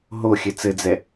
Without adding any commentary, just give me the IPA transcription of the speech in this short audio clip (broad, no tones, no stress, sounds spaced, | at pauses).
ɦ o xʲ ɘ t͡s ɘ d͡z ɛ